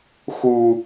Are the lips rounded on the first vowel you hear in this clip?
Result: yes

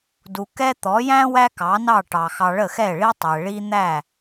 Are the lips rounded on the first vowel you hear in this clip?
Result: yes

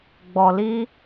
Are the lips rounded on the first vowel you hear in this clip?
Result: yes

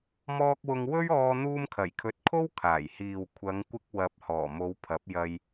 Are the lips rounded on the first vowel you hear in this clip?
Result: yes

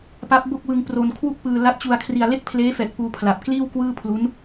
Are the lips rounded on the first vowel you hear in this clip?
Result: no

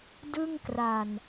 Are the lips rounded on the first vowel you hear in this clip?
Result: no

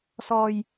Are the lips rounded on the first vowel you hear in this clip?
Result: yes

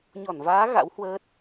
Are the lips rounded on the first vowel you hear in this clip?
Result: yes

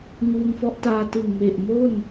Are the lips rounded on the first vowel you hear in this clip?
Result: yes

